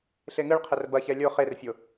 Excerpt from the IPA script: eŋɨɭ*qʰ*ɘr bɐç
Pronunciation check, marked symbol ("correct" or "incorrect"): correct